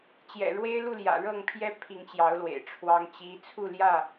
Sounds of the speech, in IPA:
t͡ɕjɛ̰˨˩ɻwe˦ɪ̯lu˥˨ljä̰˨˩ ɻɤ˥˨ŋpʰjɛ˦ pʰi˨˦ŋt͡ɕjɑ˨˦ʊ̯lwḛ˨˩ɪ̯ ʈ͡ʂʰwɑ˦ŋt͡ɕi˦ t͡sʰu˥˨ljä˥˨

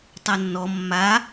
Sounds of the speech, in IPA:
tˤanːɔ mːa

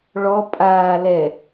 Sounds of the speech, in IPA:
ɭɔ pʼaː lɛ

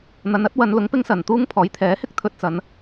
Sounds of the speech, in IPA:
n̪ɐ˨nɐ˨˥t̚wɐ˨˧nlʊ˨˥ŋ pɪ˧ŋsɐ˨˩nt̪uː˧ŋ pʰɔː˨˥jt̪ʰɛː˨˥hɪ˥k̚ t̪ʰɵ˧t̚t͡sɐ˨˧n

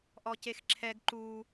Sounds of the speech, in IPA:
ʔɔcexǁʰɛɡ ǃu

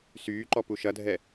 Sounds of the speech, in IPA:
syːǃɔ puʃɐdʱɛ

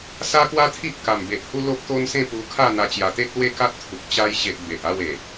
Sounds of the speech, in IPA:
sa˦kwa˦t̪ʰi˦ʔ ka˨˩mbe˨ʔhu˦ lo˦p̚t̪o˦nsẽ˥˧pu˧ kʰa˥˧n̪a˧ t͡ɕja˨˩t̪e˦k̚ lwe˥˧ka˦t̚t̪ʰu˨k̚ t͡ɕa˧jɕe˨ʔ be˨ʔ a˥˧we˨˩

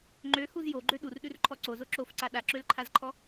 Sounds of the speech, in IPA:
ŋ͡ǃøhuz joɡ͡ǃø ɗurɗʉrǃʰɔ ǀozo ǁofǀa ɗaǁølǃʰazǃʰɔ

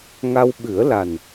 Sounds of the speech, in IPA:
ŋa˧wɓɨ˨˩˦ə̯la˨˩n

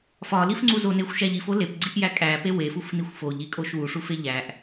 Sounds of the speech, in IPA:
fɒlifŋ͡ǀu zonexʷʃæʎ ifo lepɡ͡ǀiʔjæ kʼæpe wefufnixʷ foʎikʼoʃ wuʂufe ʎæʔ

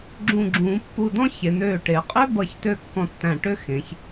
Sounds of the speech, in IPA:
ɡ͡ǁũ˧˩ɡ͡ǁũː˩˧pːu˧˩dɔ̃˥ çe˩˧n̪øː˧˩ ʈe˩˧ qʼø˥bʌ˧˩çtø˧ kːɔ̃˧tːæ̃˧˩ʈø˥ xẽ˩˧ç

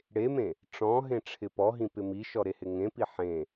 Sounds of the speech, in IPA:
ɽemẽ | ʈ͡ʂɔ̃ɦẽ ʈ͡ʂʰɪpɔɦĩ pɪmiʃɔ ɾehɪŋẽpi ħẽ

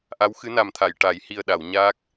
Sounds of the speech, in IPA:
ʔa˧˥wxɨ˧˥na˨˩mt̪ʰa˨˩˨j ʈa˨˩˦j hi˨˩ə̯ɗa˨˩˨w ɲaː˦˥k̚

